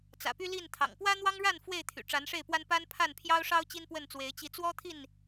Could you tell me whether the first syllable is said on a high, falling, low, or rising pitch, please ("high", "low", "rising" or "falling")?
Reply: low